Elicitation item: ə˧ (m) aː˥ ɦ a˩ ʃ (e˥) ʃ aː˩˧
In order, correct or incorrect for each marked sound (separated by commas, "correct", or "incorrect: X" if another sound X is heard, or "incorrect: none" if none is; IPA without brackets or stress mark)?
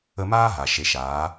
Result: correct, incorrect: e˩˧